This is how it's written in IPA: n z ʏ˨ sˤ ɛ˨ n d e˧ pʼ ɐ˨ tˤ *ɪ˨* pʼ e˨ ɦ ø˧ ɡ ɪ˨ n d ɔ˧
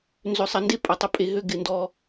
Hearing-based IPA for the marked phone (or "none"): ɪ˦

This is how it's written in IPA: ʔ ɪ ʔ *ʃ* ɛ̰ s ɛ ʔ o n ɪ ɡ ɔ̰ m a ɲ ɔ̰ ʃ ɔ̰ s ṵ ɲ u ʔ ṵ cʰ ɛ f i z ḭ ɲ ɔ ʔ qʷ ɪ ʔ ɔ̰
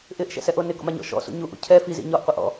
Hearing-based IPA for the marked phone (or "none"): ʃ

